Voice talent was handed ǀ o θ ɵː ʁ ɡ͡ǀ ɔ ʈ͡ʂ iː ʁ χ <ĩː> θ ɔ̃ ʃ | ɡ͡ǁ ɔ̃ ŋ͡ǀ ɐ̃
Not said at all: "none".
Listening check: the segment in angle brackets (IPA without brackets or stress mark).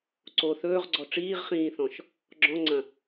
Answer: ĩː